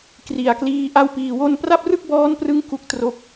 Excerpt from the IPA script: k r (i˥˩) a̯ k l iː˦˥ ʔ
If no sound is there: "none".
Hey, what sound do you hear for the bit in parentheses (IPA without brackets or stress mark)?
i˨˩